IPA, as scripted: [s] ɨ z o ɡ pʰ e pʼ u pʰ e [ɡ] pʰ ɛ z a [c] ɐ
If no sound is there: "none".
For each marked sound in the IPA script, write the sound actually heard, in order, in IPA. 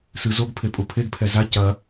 s, ɡ, c

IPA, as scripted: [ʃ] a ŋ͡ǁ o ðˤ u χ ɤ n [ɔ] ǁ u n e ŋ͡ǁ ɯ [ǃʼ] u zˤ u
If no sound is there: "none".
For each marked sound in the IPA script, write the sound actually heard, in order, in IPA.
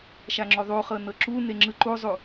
ʃ, ɤ, ǃ

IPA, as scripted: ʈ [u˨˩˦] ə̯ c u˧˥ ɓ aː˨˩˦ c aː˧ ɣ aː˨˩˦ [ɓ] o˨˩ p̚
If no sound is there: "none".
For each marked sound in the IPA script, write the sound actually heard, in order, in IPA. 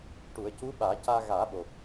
u˨˩˦, ɓ

